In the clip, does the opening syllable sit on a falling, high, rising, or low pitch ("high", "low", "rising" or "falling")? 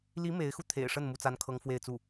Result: rising